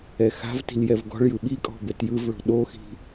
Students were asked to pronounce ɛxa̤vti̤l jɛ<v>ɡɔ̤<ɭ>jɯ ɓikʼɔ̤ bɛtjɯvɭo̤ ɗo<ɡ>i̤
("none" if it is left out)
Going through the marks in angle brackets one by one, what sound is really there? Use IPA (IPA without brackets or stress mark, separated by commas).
v, ɭ, x